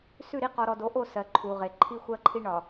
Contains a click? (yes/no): yes